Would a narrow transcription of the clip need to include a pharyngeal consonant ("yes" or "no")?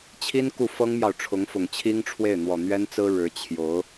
no